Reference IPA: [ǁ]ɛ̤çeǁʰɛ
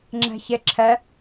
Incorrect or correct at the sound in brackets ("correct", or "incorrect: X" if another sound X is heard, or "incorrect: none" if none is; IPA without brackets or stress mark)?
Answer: incorrect: ŋ͡ǁ